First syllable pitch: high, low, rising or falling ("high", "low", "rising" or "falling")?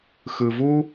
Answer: low